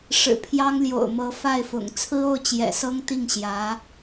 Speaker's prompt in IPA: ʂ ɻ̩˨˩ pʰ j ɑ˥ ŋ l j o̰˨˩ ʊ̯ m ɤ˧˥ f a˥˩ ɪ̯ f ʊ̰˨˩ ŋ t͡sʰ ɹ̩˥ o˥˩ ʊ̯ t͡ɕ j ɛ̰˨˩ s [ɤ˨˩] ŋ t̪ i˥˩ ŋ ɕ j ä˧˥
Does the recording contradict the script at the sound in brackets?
yes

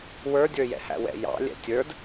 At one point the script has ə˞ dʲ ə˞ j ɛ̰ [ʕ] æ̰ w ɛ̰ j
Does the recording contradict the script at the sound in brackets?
yes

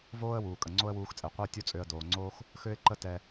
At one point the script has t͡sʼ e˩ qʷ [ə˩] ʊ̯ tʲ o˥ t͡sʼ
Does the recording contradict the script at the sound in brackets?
yes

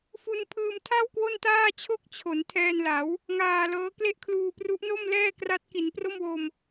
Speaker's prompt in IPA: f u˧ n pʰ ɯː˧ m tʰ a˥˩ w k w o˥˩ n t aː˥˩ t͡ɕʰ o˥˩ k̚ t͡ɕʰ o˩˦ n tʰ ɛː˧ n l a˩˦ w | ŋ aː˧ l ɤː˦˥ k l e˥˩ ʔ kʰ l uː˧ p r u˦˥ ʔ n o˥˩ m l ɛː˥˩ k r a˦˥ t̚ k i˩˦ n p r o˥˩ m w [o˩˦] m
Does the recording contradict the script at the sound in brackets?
yes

